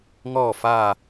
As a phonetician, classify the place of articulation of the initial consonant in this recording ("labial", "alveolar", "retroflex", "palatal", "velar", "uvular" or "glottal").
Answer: velar